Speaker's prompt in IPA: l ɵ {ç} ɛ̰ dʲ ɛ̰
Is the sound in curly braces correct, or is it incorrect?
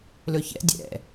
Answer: correct